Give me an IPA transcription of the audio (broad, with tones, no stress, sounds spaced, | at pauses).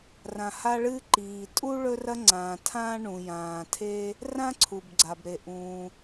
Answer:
r ã˩ h a˥ ɭ ɨː˥ ǃ iː˩ tʼ u˥ ɭ ɵ˥ r ɐ˥ ŋ͡ǀ ãː˩ tʰ ãː˥ ɳ ũ˩ j ãː˩ tʰ e˥ | r ã˥ ǀʰ u˩ b ɡ͡ǀ a˩ b ɾ e˩ ʔ ũː˩